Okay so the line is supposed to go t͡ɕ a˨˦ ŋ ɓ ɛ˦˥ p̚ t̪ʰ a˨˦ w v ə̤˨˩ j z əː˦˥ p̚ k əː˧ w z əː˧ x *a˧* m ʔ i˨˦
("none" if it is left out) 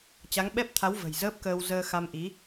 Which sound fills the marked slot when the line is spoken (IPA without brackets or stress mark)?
a˧